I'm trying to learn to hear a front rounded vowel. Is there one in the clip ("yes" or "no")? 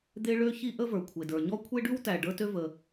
yes